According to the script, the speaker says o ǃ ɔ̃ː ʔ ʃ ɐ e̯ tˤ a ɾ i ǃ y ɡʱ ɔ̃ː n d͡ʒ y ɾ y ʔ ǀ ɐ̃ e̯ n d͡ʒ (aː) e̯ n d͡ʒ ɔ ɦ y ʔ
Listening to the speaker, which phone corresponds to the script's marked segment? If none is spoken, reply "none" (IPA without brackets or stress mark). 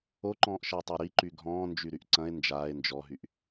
aː